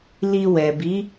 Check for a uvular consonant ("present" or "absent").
absent